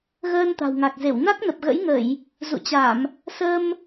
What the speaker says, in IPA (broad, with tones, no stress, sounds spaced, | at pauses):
ɣ əː˧ n t̪ a̤˨˩ w ŋ a˨˩ k̚ z e˧˩ w n a˦˥ k̚ n ə˨˩ p̚ ɣ ə̰˧˥ j ŋ ə˧˩˨ j | z ṵ˧˨ t͡ɕ a˧˩˨ m | s ə˧ m